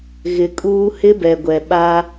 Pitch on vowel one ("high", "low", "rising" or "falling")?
rising